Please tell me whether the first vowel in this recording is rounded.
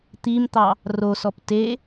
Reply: no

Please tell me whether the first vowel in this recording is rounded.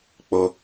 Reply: yes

